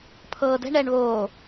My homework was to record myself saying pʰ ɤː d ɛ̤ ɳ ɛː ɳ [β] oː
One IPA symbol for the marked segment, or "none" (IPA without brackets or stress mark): β